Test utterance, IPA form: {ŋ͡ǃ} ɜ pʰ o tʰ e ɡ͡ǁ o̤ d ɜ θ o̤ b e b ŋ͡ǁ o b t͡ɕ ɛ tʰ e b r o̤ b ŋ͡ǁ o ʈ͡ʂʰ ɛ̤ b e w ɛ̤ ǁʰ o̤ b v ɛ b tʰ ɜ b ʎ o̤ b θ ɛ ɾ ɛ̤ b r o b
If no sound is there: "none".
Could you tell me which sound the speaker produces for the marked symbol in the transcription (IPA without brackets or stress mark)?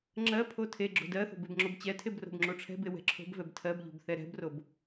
ŋ͡ǁ